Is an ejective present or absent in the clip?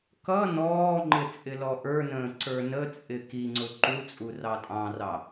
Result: present